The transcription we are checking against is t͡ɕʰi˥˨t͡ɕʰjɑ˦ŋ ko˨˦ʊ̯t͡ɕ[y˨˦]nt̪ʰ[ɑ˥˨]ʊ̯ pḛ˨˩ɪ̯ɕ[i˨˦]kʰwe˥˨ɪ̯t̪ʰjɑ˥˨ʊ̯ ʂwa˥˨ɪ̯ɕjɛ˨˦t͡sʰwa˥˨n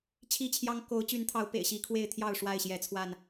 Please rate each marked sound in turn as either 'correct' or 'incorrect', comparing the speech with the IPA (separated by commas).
correct, incorrect, correct